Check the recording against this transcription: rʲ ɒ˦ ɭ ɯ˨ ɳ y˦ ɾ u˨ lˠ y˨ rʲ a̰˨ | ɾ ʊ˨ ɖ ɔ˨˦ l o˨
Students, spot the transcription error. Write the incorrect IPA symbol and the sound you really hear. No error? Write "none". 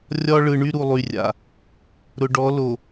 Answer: none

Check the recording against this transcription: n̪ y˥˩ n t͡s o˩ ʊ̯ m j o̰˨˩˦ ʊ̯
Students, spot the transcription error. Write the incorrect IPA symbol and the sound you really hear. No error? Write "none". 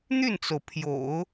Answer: m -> pʰ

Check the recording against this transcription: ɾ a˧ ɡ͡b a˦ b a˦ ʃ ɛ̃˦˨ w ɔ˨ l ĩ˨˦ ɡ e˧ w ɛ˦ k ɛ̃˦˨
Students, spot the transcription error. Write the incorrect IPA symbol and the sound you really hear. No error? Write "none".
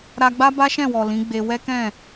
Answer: ɡ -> ɡ͡b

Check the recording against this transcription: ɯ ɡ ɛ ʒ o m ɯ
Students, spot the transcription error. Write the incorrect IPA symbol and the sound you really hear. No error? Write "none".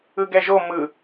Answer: none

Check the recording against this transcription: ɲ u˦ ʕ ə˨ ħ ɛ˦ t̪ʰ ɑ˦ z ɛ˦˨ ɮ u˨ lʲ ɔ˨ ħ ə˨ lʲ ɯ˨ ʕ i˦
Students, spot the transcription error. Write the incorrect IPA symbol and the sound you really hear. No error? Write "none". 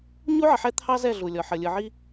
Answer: none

